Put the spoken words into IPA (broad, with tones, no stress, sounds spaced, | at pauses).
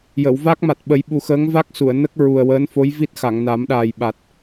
j ə˨˩˨ w v a˦˥ k̚ m a˨˩ t̚ ɓ ə˨˩˦ j ɓ u˨˩ x əː˧˥ ŋ v a˦˥ k̚ s u˨˩˨ ə̯ n ə˦˥ k̚ ɹ u˨˩ ə̯ w əː˧˥ n f o˧˥ j v i˦˥ t̚ x a˨˩˨ ŋ n a˨˩˦ m ɗ aː˨˩ j ɓ a˨˩ t̚